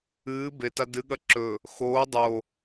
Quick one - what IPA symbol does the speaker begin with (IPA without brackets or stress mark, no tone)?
ɨː